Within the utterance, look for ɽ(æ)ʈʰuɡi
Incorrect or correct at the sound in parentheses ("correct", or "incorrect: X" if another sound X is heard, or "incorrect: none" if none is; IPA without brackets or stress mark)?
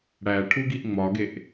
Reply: correct